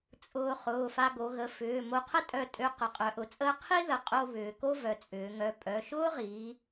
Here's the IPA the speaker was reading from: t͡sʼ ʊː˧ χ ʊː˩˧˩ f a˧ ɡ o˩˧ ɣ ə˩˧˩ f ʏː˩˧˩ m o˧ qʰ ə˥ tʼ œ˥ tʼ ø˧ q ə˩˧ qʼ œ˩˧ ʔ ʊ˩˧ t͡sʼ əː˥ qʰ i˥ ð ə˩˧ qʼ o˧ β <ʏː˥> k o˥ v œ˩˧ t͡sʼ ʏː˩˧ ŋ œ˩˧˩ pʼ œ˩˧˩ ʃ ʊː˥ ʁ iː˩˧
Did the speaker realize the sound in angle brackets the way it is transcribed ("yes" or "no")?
no